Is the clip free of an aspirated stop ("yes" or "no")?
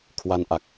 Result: no